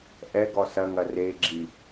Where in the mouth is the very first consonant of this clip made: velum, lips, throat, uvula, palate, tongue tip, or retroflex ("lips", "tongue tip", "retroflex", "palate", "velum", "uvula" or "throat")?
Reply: throat